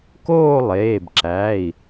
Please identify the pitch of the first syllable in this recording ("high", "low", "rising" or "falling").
falling